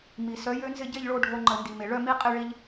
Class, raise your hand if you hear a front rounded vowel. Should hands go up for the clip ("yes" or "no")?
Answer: yes